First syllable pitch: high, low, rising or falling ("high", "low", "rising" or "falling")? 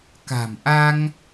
low